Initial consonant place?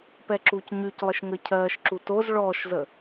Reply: labial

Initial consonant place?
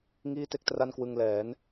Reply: velar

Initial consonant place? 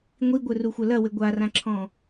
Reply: velar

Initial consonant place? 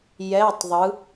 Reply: palatal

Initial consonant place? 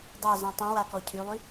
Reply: alveolar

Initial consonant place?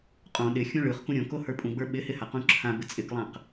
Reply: uvular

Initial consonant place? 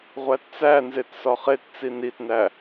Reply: uvular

